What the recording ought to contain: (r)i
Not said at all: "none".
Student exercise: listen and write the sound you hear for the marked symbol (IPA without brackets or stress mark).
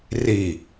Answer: r